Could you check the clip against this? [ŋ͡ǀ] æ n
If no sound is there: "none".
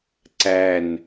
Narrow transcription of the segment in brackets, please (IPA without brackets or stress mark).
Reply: ǀ